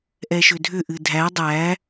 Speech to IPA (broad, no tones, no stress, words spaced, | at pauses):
ʔɛʃʏdʱʏ ʔɨdʱæ dˤæ